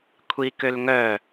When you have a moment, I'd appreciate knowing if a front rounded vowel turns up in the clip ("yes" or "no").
yes